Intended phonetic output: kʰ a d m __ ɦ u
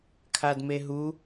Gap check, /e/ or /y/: e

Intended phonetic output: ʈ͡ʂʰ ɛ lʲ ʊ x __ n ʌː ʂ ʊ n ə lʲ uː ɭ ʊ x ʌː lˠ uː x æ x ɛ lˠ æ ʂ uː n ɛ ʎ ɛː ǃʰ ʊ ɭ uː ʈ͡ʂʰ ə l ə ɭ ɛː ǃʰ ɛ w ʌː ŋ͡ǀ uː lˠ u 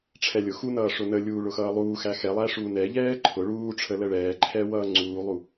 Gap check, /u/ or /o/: u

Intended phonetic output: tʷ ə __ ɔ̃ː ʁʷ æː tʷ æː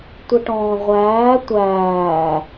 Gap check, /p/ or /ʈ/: ʈ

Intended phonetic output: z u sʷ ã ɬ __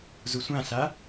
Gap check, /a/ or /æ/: a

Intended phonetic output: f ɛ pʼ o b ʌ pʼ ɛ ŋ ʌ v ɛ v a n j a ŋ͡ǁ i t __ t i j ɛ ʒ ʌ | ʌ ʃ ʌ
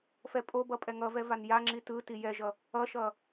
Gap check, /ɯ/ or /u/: ɯ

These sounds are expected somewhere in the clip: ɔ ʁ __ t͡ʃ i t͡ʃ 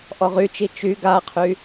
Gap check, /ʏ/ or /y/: y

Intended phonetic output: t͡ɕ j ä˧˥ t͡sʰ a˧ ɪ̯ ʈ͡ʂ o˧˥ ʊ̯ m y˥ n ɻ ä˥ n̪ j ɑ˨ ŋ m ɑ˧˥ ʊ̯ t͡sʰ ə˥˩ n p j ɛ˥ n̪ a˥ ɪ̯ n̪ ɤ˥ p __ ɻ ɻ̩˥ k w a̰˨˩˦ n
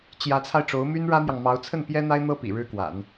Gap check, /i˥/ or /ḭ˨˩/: ḭ˨˩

